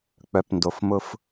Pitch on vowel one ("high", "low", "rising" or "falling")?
low